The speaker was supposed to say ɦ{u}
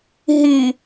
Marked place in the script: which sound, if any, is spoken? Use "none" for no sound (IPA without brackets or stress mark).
y